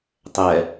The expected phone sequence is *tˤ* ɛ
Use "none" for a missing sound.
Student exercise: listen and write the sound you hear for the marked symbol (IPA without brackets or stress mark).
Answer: tˤ